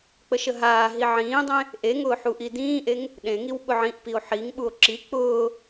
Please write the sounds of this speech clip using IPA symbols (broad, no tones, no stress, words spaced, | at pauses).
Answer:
k͡pəʃəɦaː ɦiʕĩːdˤẽ | ʔeŋʊːħuʔi dĩːʔeŋ | ɗẽŋiw ɓʊʕĩʔpio̯ ħiŋ ɓuo̯ǁi k͡pʊː